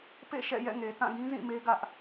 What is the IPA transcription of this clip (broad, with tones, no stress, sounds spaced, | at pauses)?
p ḛ˦˨ ʃ ɛ̰˦˨ j ɛ̰˦˨ ŋ e˨ t ã˦˨ ɡ ĩ˦ z ĩ˦˨ m e˦ ɡ ä˦ ʔ